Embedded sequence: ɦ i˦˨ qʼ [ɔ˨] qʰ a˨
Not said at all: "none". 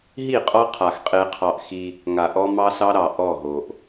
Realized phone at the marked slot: ɔ˦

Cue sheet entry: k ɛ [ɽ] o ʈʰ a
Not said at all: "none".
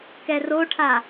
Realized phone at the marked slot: r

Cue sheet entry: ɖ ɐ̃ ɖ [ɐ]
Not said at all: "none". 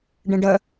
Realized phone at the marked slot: ɐ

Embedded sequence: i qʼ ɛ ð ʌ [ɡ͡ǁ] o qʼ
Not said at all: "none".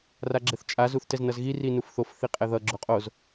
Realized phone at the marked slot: ɡ͡ǁ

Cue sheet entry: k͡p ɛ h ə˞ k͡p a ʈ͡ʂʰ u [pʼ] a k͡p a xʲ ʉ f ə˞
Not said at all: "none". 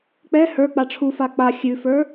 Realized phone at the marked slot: f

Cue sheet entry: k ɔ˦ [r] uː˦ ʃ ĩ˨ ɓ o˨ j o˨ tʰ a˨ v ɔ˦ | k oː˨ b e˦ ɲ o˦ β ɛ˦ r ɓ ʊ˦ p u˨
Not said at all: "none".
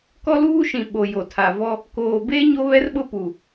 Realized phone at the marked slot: l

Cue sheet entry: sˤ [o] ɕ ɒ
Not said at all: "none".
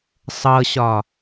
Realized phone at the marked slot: ɤ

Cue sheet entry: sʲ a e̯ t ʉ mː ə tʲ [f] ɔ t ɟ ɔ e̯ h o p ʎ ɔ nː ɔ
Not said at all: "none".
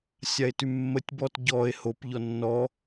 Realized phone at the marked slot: b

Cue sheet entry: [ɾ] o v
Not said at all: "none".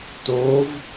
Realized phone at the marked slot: t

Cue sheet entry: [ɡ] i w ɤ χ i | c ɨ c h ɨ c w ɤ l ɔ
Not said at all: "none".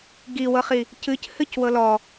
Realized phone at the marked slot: ɡ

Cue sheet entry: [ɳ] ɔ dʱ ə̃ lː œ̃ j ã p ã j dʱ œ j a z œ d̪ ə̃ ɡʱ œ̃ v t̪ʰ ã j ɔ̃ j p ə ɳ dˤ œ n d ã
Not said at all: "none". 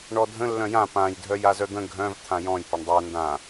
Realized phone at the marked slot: ɳ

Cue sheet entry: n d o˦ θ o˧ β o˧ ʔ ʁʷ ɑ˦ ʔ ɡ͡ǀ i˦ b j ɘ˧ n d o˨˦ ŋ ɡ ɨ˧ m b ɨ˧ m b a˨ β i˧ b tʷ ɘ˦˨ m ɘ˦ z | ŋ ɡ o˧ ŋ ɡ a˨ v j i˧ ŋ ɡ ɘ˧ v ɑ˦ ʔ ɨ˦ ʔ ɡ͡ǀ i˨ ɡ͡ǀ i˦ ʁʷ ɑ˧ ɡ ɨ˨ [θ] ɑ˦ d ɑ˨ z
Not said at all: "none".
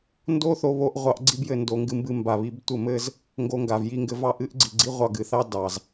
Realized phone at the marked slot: θ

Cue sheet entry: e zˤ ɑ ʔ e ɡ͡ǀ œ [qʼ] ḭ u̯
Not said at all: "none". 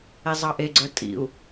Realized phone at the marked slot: tʼ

